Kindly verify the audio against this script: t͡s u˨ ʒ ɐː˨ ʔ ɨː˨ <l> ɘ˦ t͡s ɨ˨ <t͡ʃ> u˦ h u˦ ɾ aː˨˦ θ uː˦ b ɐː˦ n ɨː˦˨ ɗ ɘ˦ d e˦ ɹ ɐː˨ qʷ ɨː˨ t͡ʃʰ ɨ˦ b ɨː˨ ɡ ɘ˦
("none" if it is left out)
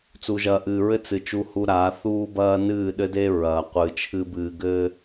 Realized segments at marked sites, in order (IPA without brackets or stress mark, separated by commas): ɹ, t͡ʃ